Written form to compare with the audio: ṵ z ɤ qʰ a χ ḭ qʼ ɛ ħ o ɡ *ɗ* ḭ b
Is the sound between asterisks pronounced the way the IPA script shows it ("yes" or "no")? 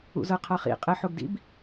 no